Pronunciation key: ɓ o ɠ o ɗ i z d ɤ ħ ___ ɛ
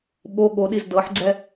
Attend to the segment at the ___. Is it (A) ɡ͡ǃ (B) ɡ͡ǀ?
B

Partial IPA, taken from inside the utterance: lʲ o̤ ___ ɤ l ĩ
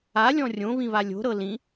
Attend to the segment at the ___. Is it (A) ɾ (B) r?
A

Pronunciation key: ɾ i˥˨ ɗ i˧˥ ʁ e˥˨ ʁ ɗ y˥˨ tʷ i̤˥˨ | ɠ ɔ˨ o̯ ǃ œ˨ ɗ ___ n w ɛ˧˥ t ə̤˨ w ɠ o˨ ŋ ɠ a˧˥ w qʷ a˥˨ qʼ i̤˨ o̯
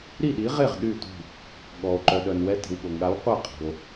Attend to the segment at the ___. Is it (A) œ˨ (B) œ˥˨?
A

